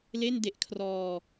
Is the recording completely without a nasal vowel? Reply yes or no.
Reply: yes